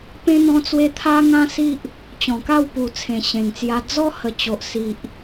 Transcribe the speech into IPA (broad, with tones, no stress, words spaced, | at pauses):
pẽ˦ n̪ɔ̃˧t͡swe˧ t̪ʰa˦ŋã˦si˦ʔ | t͡ɕɔ̃˨˩ka˥˧wpu˨˩ t͡sʰẽ˨˩ɕẽ˨˩ŋt͡sja˧ d͡zɔ˦hə˨˩t͡ɕo˨ʔ si˨ʔ